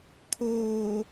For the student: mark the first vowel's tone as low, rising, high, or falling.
low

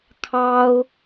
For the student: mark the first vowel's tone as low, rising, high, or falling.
high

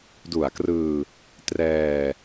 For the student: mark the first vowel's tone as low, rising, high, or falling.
low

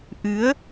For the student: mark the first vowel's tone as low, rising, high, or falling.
rising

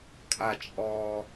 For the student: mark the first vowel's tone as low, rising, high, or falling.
low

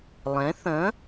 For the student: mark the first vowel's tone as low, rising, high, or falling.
rising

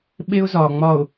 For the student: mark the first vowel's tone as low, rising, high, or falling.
high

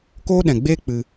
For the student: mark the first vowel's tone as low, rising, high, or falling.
high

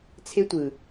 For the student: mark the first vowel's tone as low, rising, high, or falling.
high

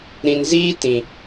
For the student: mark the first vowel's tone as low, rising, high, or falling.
low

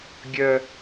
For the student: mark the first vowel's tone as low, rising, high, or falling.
high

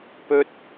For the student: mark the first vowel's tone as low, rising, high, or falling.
high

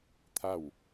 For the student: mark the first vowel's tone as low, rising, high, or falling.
falling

